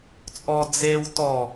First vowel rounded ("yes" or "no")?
yes